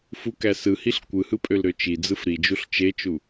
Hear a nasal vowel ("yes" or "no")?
no